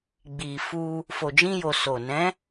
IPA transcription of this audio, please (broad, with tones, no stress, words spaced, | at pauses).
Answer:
ɡ͡bi˨fu˧ | fo˨d͡ʒĩ˧jo˨ so˨ nɛ̃˨˦